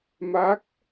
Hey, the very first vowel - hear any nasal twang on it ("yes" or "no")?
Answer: no